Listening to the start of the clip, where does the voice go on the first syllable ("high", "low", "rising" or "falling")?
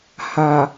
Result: low